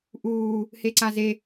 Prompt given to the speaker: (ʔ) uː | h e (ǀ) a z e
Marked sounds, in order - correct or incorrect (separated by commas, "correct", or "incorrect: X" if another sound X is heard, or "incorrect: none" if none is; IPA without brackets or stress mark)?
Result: correct, correct